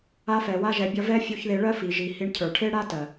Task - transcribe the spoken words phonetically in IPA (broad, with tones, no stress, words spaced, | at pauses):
a˧fɛ˨wa˧ʒɛ˨ bʲʌ˧vɛ˦ fʲu˧ç ðe˧ɭɜ˦fi˨ ʒi˨hi˧ɳcʰə˞˨ ʈʰe˦ɽa˦ tɜ˨